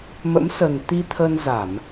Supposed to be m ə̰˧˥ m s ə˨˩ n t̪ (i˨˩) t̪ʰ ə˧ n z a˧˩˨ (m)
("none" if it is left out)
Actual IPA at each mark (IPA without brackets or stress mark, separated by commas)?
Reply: i˧, m